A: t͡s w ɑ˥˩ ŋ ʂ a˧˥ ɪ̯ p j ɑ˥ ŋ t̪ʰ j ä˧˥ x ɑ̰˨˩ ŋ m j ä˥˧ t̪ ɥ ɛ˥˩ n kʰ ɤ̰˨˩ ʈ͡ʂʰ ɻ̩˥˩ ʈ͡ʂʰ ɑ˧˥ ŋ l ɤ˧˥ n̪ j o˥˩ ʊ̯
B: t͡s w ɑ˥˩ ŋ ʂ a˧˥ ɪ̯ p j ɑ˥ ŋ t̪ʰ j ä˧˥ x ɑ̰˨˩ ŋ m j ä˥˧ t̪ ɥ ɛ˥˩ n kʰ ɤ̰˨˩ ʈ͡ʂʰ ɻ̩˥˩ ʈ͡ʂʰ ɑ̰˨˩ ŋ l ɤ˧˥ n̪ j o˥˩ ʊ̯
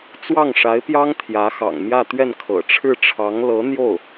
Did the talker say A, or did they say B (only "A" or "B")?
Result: A